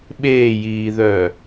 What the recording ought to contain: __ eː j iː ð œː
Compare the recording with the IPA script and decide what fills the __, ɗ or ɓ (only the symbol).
ɓ